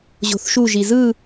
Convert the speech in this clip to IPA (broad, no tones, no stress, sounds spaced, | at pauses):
ʑ o̤ θ ʃ u ʒ i z ɯ